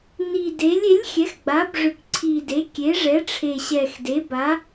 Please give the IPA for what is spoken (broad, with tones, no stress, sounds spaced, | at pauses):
n i˨˩ d e˩˥ lʲ e˩˥ lʲ xʲ ɛ˩˥ x ɡ͡b a˩˥ b ʐ ʏ˨˩ k ǀʰ i˨˩ d e˩˥ kʲ e˩˥ ʐ ɛ˩˥ ʈ͡ʂʰ e˨˩ ɕ ɛ˨˩ x d e˩˥ b a˩˥